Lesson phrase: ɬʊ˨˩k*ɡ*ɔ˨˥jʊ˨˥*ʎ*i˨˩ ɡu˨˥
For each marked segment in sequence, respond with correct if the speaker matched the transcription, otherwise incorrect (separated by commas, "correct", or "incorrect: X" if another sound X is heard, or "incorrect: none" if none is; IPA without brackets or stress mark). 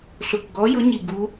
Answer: correct, incorrect: ɲ